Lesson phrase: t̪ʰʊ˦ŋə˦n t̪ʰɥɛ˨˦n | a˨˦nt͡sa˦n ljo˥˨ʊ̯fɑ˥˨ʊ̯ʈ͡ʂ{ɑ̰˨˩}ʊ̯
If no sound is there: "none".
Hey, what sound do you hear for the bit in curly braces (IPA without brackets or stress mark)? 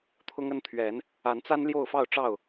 ɑ˥˨